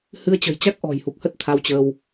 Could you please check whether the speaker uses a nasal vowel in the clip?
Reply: no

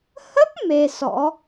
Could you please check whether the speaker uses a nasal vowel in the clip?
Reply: no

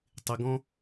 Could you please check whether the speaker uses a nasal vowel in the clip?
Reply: yes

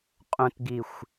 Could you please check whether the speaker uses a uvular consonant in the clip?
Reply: yes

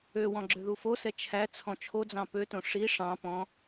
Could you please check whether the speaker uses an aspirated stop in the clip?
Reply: yes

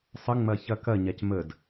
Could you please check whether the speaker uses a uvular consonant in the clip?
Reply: no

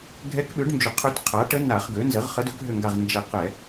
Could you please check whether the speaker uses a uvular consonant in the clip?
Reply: yes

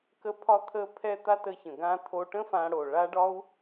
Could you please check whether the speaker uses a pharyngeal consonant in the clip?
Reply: no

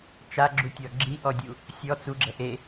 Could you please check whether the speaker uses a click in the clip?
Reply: yes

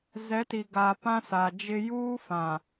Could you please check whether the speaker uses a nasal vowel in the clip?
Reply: yes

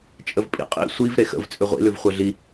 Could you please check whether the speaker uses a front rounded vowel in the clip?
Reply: yes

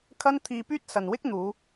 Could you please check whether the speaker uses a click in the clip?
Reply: no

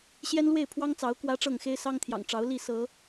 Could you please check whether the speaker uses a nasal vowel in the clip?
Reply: no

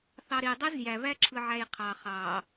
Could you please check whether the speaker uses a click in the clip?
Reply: yes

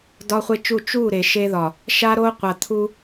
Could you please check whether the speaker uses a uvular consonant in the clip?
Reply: yes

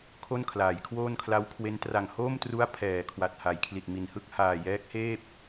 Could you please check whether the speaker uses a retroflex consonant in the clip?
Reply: no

